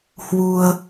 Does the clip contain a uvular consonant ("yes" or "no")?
no